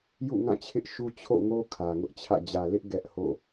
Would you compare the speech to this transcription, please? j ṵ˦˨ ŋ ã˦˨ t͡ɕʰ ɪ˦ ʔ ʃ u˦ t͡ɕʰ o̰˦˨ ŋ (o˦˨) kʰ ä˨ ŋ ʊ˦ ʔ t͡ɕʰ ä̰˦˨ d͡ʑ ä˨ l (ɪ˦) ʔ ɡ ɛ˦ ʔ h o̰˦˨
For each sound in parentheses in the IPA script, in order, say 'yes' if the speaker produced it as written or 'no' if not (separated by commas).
no, yes